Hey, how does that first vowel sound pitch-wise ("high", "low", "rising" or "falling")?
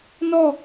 falling